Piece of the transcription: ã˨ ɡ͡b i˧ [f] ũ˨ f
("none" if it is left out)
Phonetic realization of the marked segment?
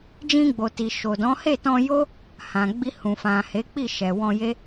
h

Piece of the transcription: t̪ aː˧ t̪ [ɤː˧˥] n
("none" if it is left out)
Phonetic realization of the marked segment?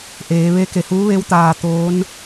oː˧˥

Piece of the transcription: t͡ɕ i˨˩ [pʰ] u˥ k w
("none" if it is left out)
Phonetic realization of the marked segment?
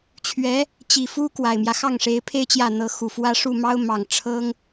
f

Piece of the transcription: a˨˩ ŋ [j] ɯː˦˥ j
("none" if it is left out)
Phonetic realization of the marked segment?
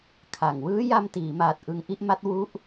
w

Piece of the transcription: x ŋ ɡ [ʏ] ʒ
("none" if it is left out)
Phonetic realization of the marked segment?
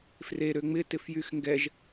ɛ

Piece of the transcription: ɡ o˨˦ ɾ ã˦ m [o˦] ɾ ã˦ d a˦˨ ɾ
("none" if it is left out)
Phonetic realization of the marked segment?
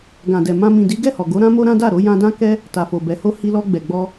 o˦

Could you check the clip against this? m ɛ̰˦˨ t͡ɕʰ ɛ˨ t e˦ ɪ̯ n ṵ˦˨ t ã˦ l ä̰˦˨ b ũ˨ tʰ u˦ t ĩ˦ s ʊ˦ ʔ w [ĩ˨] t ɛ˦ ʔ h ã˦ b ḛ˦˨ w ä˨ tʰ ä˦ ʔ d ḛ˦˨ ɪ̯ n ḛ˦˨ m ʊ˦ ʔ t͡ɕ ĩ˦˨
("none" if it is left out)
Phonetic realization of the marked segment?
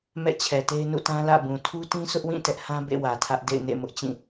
ĩ˦˨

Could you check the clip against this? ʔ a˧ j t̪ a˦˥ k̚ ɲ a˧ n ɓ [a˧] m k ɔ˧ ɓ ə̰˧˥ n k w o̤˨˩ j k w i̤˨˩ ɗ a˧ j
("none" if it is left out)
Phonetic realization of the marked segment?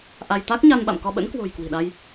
a̰˧˨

